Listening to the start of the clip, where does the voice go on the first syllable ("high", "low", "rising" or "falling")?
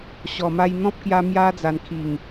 low